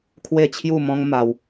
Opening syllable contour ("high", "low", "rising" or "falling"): falling